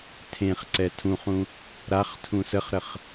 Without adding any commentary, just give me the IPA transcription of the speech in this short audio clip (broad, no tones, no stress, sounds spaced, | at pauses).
tʰ ẽ χ ǀ ɛ tʰ ũ χ ũ | ɾ a χ tʰ ũ s ə χ ɾ ə χ